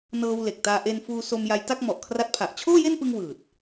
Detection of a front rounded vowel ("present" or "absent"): absent